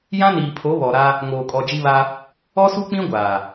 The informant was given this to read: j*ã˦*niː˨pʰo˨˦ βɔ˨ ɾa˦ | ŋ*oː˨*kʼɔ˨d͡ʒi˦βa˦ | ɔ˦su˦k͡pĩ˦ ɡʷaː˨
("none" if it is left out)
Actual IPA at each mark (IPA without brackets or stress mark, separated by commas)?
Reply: ã˦, oː˨